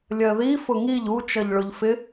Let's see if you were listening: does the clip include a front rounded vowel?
no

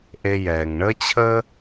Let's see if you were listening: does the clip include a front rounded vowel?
no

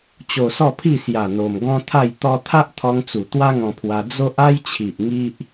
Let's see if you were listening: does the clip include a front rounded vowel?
no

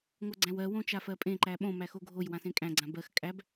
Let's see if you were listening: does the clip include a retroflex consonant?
no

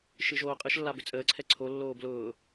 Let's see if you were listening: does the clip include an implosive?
no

